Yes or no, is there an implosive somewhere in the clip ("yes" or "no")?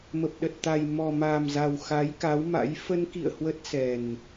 yes